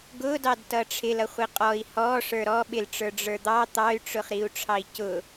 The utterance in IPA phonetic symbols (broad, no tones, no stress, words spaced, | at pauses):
ɡʊdɑd tʌʈ͡ʂʰɪl ʌχʷiqʼɔi̯ hɔ ʂə˞ɾɔ ɓɪlʈ͡ʂə˞ ɖ͡ʐə˞d̪ɑ t̪ɑy̯ʈ͡ʂʊχ ɾiu̯ʈ͡ʂʰɑi̯cʊ